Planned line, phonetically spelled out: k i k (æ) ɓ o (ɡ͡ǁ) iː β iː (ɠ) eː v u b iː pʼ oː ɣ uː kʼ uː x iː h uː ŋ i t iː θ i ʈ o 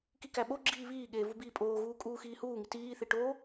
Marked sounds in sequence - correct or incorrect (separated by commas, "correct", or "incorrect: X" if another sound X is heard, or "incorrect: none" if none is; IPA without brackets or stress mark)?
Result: correct, correct, correct